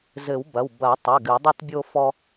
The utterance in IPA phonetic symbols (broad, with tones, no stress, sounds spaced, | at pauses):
z ɘ˨˩˦ w b ɐ˩˧˩ w b ɐ˨˩˦ tˤ ɛ˩˧˩ ɡ ɨ˨˩˦ dˤ u˦ t bʲ o˦ f ɔ˦